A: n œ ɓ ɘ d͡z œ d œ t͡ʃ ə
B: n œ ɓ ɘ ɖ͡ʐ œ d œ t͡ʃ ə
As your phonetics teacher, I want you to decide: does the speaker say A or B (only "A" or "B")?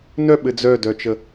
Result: A